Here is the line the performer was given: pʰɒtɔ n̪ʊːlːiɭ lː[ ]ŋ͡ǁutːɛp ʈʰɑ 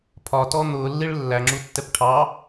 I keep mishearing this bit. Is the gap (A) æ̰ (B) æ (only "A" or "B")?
B